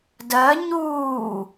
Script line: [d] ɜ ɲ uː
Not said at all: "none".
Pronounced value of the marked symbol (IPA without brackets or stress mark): d